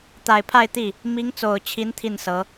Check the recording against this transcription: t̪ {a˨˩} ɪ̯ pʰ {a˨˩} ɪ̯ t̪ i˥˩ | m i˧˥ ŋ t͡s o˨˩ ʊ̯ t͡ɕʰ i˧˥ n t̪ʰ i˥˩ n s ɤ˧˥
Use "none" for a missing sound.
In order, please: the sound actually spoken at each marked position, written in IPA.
a˨˩, a˥˧

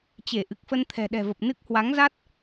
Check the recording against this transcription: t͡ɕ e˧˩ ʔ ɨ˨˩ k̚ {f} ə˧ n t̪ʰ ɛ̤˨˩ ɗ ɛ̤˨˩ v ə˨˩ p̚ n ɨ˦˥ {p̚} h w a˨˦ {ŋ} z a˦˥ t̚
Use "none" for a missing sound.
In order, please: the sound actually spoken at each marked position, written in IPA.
f, k̚, ŋ

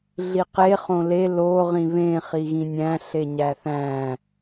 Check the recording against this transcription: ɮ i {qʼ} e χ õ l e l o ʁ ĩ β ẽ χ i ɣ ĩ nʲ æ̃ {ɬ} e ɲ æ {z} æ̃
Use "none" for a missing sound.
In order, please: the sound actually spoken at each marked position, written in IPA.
q, ɬ, θ

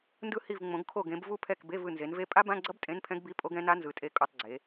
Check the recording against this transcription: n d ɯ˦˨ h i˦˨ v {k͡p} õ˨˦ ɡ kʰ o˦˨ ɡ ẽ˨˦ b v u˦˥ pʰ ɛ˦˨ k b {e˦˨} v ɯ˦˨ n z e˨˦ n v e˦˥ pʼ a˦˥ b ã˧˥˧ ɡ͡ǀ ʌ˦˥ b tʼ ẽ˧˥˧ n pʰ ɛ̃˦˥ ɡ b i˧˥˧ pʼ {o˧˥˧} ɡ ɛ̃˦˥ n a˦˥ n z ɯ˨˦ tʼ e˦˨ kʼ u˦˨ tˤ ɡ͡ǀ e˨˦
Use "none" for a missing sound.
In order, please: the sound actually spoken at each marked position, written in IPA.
ŋ͡m, e˧˥˧, o˦˥

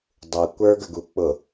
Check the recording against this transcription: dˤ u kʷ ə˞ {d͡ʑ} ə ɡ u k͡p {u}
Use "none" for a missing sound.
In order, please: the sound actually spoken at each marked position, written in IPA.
ɡ, ʊ

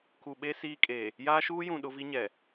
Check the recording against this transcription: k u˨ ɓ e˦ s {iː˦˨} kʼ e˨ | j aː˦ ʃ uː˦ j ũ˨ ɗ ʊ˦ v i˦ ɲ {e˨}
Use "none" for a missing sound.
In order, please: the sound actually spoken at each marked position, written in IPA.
iː˦, ɛ˨

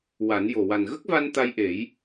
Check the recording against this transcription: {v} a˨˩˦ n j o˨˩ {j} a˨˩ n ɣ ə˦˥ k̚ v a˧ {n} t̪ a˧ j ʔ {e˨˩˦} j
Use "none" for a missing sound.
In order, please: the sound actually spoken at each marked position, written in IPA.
w, w, n, e˨˩˦

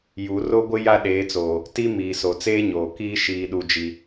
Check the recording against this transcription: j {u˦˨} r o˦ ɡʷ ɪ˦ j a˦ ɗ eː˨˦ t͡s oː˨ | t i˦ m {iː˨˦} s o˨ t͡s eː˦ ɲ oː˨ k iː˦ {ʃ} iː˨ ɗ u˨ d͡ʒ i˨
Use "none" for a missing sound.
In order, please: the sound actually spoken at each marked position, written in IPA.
u˨˦, iː˨, ʃ

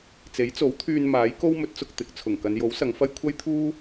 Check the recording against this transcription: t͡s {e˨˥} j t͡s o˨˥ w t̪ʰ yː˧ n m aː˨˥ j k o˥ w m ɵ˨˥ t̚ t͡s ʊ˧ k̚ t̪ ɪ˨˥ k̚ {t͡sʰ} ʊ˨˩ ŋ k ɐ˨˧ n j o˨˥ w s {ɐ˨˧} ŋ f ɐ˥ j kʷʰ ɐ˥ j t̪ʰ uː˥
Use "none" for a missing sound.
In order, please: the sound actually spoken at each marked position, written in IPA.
e˨˥, t͡sʰ, ɐ˨˧

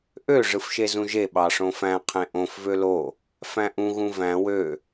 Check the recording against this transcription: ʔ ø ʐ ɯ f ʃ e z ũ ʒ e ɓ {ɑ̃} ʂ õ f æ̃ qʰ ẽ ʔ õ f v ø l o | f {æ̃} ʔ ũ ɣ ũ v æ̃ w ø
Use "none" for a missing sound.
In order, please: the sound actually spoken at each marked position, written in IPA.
ɑ, æ̃

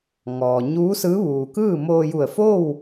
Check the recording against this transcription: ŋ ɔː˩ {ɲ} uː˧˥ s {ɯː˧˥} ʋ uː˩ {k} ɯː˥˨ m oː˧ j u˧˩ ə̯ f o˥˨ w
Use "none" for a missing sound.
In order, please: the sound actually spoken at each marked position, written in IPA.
ɲ, ɯː˧˥, k

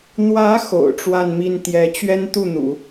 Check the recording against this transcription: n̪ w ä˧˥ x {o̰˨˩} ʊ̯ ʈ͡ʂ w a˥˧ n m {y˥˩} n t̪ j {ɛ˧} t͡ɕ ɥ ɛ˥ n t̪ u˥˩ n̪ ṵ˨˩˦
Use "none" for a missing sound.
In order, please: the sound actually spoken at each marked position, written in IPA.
o̰˨˩, i˥˩, ɛ˧˥

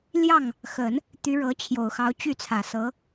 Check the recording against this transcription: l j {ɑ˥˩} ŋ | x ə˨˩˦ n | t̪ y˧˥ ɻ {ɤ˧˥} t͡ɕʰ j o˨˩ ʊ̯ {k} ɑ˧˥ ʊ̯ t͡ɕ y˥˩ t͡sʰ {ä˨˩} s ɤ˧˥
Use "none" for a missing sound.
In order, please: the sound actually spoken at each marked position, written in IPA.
ɑ˥˩, ɤ˧˥, x, ä˨˩

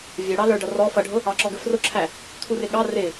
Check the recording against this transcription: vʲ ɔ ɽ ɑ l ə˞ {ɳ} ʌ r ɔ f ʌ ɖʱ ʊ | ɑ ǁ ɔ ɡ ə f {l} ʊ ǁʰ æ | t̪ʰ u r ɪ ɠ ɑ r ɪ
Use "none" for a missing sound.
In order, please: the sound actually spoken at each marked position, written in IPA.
ɖ, r

